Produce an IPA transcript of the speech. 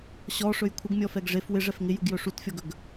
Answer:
ɕ ɔ ʂ ɵ j kʷʰ ɪ ɡ mʲ ɔ f ɛ ɡ ʐ e f w ɪ ʐ ɛ f ŋ ɪ j u ɡ j ɵ ʂ u t fʲ ɔ ɡ ɵ ɡ

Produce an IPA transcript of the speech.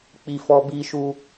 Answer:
k͡p i˧ f ɔ˧ b i˧ ʃ u˧

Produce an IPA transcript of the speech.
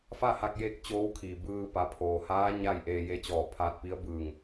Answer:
f a˥˨ h a˧ k̚ j e˧ k̚ t͡ɕ oː˧˥ w kʰ iː˩ b ɯː˧ p a˩˧ pʰ oː˩ h aː˧˥ ɲ a˥˨ j ʔ eː˧ j e˧˥ t͡ɕ ɔː˧˩ pʰ aː˧ t̚ p i˧˥ ə̯ b ɯː˧˩ ŋ

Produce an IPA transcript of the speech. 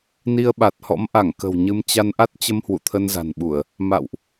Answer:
n i˧ ə̯ ɓ a˨˩ t̚ h ɔ̰˧˥ m ʔ a˧˩ ŋ k ə̤˨˩ w ɲ ɨ˧ m t͡ɕ a˧ n ʔ a˦˥ t̚ t͡ɕ ə˧ m h w ṵ˧˨ t̪ʰ ə˧ n z a̤˨˩ n ɓ u˧˩˨ ə̯ | m a̰˧˨ w ʔ

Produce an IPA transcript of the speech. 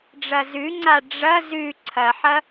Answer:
ɖ͡ʐ ɐ z ʉ ŋ͡ǀ a ɖ͡ʐ ɐ z ʉ ǀʰ ɐ ħ ɐ

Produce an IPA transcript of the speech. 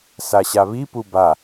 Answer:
s a ɕ a β i p u b a

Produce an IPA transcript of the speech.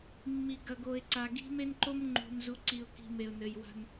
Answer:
mː i˨ ɡ ɐ˨ ɡ o˨ ɪ̯ ǀ a˨ ɡ i̤˦ m e˦ n ǃ o˦ m ŋ͡ǃ ṳ˨ n z u˨ ǀ i˨ ʊ̯ k i̤˨ m e˨ ʊ̯ n ɘ˨ j w a̤˦ n

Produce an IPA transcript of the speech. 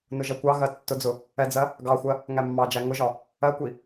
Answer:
n ʊ ʒ ɜ kʷ ɑ ɣ ɜ tː ʊ d͡z ʊ | ɛ d͡z ɜ | ɡ ɑ xʷ ɜ | ŋ æ mː ɑ d͡ʒ æ ŋ ʊ ʒ ɒ | ɜ kʷ i

